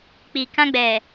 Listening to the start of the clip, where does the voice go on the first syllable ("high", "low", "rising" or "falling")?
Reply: low